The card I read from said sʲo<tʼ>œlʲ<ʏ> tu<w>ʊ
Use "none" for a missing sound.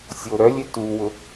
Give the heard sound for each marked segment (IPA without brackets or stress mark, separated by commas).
ɾ, ʏ, w